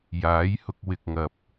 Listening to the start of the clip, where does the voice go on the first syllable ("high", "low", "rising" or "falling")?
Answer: rising